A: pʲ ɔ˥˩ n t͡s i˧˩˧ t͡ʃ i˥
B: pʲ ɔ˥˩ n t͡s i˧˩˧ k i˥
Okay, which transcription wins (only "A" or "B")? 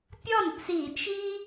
A